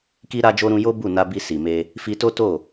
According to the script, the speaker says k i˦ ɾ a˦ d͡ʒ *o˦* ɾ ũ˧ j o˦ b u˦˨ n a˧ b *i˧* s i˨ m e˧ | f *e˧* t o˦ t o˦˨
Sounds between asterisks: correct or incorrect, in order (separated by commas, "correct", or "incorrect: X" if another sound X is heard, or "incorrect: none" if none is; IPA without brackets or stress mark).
correct, correct, incorrect: i˧